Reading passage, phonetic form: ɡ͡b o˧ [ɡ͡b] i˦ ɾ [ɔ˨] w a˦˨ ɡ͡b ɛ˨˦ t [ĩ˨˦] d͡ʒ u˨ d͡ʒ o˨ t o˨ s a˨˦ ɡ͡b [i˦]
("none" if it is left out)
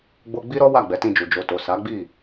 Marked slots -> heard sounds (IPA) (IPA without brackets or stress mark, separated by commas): ɡ͡b, ɔ˦, ĩ˧, i˦˨